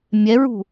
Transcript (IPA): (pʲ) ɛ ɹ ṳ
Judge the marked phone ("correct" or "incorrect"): incorrect